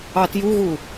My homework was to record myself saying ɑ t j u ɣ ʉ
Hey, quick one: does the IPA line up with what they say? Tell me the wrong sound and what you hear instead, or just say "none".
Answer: ʉ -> u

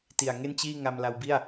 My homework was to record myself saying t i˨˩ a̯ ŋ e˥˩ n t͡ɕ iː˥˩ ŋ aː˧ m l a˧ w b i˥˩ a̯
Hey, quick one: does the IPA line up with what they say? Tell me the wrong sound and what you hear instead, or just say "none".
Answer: aː˧ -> a˧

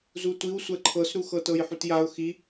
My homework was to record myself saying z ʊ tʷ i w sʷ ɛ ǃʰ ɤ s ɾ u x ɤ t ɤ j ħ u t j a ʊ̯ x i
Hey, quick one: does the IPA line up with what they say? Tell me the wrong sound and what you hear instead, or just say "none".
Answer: ʊ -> u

